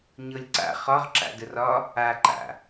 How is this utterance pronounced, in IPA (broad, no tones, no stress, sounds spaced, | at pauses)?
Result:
ɲ ɤ lʲ ǀ a̰ χ ɒ ʁ ǁ a̰ d ə r ɒ | a ǃ a̰